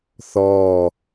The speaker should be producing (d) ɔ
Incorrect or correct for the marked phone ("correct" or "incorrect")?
incorrect